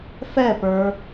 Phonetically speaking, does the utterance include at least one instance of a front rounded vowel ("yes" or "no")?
no